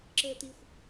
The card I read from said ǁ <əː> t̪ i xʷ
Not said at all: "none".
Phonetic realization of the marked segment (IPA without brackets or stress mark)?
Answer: əː